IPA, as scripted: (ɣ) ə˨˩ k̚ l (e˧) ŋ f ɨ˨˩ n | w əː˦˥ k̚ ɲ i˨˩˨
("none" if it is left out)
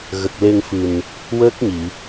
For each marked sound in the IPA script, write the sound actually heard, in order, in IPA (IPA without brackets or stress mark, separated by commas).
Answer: ɣ, e˧